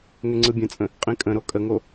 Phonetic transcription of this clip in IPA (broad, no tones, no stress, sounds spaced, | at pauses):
ŋ ʏ ŋ͡ǀ ɯ bʲ ə̃ t͡sʼ ə̃ | qʼ ĩ kʼ ə̃ ɾ o kʼ ə ŋ o